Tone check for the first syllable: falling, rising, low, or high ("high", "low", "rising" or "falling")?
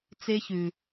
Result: high